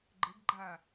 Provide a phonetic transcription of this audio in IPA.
ɡ͡ǃ ə ɡ ɡ͡ǃ a

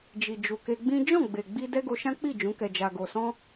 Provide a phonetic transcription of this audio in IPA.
d͡ʒ i˨ d͡ʒ u˨ k e˧ ɡ͡b ĩ˦ d͡ʒ ɔ̃˦˨ ɡ͡b e˨ ɡ͡b i˧ d ɛ˦ ɡ o˧ ʃ ã˦ k͡p i˦˨ d͡ʒ ũ˨˦ k ɛ˧ d͡ʒ a˧ ɡ o˧ s ɔ̃˦

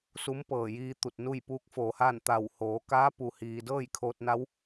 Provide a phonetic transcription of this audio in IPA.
s u˧˥ m p ɤː˧˩ j iː˧ t̪ u˧˩ t̚ n u˥˨ j p uː˧˥ k̚ f oː˩ h aː˥˨ n t̪ a˧˩ w h oː˩˧ k aː˧˥ p u˩ h iː˩ d ɤː˥˨ j kʰ oː˧ t̚ n a˧˥ w

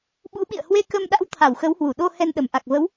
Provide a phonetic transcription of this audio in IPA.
ɓ ṵ˧˥ ɓ ḭ˧˨ ə̯ h w e˧ k ə˧ m ɗ a̰˧˥ w t̪ʰ a˧˩ w x ə˨˦ w h w u˧˩ ɗ o˧ h ɛ˧ n ɗ ə˧˩ m ʔ a˨˩ k̚ v ə˨˦ w

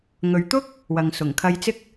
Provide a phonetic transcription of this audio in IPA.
ŋ ɵ˨ ɥ t̪ ʊ˥ k̚ | w ɐ˨ ŋ s ʊ˨˩ ŋ kʰ ɐ˧ j t͡s ɪ˥ k̚

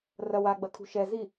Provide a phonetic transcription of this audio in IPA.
r ɐ w a ɡ͡b ɐ kʰ ṳ ʃ ɛ z i

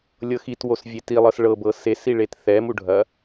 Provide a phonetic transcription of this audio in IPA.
lʲ ɤ x i t w o s vʲ e t i lˠ ɤ s ɭ ɤ b ɤ s e s i ɭ e t θ ɛ m u ɖʱ ɐ

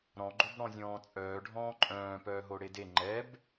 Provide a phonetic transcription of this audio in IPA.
ɾ ɔ̃ ɡ͡ǃ o b ɽ ɔ̃ zʲ ɔ̃ː t͡sʼ œː ɖʱ ɔ̃ː ǃʼ œ̃ː p œː ɦ o ɽ e d e ŋ͡ǃ ɛ b

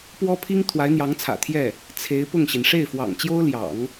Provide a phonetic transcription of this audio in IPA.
p w ɔ˥ pʰ i˥ ŋ t̪ʰ w a˧˥ ɪ̯ n̪ j ɑ˧˥ ŋ t͡sʰ ä̰˨˩ t̪ʰ j ɛ˥˩ | t͡sʰ e˧˥ ɪ̯ p ʊ˥˩ ŋ ɕ i˩ n ʂ e˥˩ ɪ̯ f w ɑ̰˨˩ ŋ t͡ɕ j o˥ ʊ̯ l j ɑ̰˨˩˦ ŋ

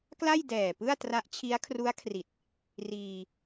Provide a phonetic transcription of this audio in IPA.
k l a˥˩ j d ɛː˨˩ p ɯ˥˩ a̯ t r a˦˥ ʔ t͡ɕʰ i˦˥ a̯ kʰ r u˦˥ a̯ kʰ r i˨˩ t̚ | r iː˧

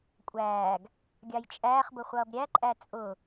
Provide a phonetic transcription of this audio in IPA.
kʷʼ æː ɡ | ɡʲ ɑ j t͡ʃʼ æː χ b ʊ χʷ ʌː b ɾʲ æ ǃʼ æ t͡sʼ ʊ

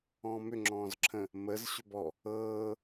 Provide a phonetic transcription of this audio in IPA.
ɔ̃ː m ʏ ŋ͡ǁ ɔ̃ː z ǁʰ ə̃ | m ə z ɕ ʏ b ɔ | ɤː

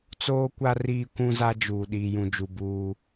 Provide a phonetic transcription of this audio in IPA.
t͡s oː˦ kʷ a˦ r iː˦ kʷ ũ˦ z a˦ d͡ʒ uː˨ ɗ iː˨ j ũ˨ d͡ʒ u˨ b uː˦

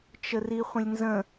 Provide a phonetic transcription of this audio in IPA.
t͡ʃ ə r i χʷ ə̃ lʲ n z ə̃

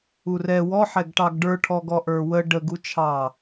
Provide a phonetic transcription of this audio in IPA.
u r ɛ w ɔ ħ ɛ ɡ ʈ ɑ ɡ ɖ ə˞ ʈʰ ɔ ɡ ɔ ʔ ə˞ w ə ɖ ə ɡ u t͡ʃʰ ɑ

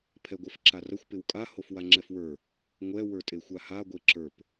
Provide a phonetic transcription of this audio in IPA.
pʰ ɛ ɡʷ ɛ f ǁ a r ɐ xʷ p ɪ w kʼ a h o f w a ŋ͡ǁ ɛ f w ə˞ | ŋʷ ɛ w ə˞ tʼ e xʷ a h a ɡʷ e ǁ ə˞ p

